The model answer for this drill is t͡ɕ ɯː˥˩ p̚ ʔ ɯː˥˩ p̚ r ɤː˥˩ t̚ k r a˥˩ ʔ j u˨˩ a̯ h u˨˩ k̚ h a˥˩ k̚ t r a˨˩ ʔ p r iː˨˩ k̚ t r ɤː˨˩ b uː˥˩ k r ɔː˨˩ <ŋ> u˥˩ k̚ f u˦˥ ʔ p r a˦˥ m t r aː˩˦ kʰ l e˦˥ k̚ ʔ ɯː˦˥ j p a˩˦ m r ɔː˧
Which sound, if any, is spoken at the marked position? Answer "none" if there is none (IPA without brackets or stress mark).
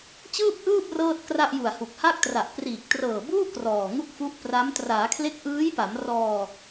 ŋ